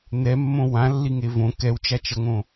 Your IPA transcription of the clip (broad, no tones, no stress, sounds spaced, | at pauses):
n ɛ mː õ w ã lː i ŋ e v õ k ɛ w t͡ʃ a t͡ʃ ʌ ŋ õ